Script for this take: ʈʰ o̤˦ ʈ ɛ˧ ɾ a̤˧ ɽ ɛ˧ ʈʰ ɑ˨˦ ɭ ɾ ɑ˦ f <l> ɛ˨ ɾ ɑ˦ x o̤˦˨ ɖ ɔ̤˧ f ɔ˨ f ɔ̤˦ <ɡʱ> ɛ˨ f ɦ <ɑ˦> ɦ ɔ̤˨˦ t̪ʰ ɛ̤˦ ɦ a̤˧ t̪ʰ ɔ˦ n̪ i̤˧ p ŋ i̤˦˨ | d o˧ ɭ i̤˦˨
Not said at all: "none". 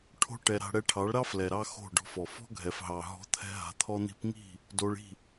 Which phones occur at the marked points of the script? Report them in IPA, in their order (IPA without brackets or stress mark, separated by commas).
l, ɡʱ, ɑ˨